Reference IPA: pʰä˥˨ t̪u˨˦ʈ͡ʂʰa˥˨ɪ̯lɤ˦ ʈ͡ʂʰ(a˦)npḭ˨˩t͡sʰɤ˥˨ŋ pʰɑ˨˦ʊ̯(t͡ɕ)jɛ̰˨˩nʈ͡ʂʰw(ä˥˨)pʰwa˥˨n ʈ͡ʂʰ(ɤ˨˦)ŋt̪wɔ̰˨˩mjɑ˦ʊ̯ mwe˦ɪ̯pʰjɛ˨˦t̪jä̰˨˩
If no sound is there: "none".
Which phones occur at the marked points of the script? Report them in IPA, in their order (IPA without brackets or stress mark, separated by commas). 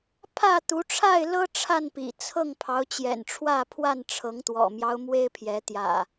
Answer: a˥˨, t͡ɕ, ä˥˨, ɤ˨˦